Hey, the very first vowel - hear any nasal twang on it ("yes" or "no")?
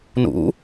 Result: no